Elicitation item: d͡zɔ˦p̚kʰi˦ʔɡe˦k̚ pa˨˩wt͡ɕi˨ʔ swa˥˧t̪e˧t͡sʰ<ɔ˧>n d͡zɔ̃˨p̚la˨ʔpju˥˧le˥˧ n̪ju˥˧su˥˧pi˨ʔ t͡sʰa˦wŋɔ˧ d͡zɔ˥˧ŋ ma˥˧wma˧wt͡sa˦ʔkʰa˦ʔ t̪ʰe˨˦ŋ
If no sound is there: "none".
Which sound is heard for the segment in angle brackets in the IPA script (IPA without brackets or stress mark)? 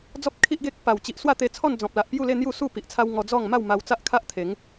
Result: ɔ˥˧